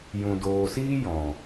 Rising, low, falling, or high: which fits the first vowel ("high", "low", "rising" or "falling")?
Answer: low